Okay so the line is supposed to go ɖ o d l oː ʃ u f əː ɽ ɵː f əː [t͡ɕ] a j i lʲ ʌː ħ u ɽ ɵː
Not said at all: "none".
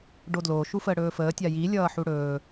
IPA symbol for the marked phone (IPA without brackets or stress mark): tʲ